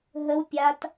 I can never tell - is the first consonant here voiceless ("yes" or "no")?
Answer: no